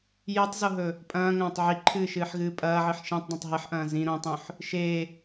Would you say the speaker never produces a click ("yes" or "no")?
no